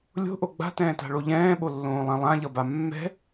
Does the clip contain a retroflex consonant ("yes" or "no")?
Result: yes